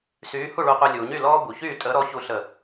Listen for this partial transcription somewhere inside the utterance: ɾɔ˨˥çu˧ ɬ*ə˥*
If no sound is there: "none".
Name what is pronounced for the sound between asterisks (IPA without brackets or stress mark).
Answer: ə˧˩